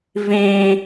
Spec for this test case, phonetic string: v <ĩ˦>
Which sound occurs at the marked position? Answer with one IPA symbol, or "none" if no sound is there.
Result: ĩ˦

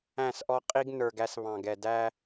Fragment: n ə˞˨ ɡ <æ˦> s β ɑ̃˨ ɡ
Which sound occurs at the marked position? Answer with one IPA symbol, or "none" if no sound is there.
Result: æ˦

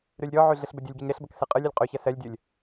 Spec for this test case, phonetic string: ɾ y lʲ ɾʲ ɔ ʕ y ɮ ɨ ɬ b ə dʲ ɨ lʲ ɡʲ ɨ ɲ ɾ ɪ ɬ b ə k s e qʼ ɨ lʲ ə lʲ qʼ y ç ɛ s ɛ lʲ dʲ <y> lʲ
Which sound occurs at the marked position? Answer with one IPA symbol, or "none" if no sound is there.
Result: ɨ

